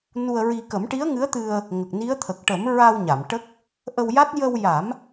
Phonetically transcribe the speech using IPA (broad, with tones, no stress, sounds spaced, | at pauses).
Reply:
n u˧ ə̯ ɹ i˧ k ə˨˩˦ m ʈ i˧˥ ə̯ ŋ ɨ˧˥ ə̯ t̪ ɨ˧ ə̯ | ŋ ə˨˩ k̚ n i˧˥ ə̯ t̪ʰ ə˨˩ k̚ ʈ ə˨˩˦ m ɹ a˧ w ɲ a˨˩˨ m ʈ ə˦˥ k̚ | ʔ ə˧ w j a˦˥ t̚ j ə˧ w j a˨˩˦ m